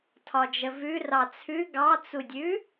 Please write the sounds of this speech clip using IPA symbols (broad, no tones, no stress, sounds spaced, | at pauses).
tʰ ɒ d͡ʒ ə v ʉ r ɑ t͡sʰ ʉ ɡ ɑ t͡s u dʲ ʉ